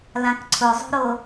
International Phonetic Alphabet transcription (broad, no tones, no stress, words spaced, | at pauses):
lãkǀʰʊzˤo̤ɾo